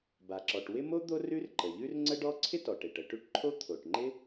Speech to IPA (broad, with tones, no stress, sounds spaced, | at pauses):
b a˩ ǁ ɔ˩ ʈ w ɪ˥ m o˥ d̪ o˥ r ʉ˥ r ǃ ə˩ ʎ ʉ˥ r ŋ͡ǀ ə˥ ɖ ɔ˥ ǀʰ ɪ˥ t ɔ˩ ʈ e˩ ʈ ə˩ ʈ ʉ˥ ʈ ǃʰ o˥ t̪ʰ o˩ ʈ ŋ͡ǃ ɪ˥